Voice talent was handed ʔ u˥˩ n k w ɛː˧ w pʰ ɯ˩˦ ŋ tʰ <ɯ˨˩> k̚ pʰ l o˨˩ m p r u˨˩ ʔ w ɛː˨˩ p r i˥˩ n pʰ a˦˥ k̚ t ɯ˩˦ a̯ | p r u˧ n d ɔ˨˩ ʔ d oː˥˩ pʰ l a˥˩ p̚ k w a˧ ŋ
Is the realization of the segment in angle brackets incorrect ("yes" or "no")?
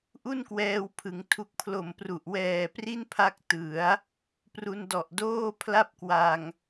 yes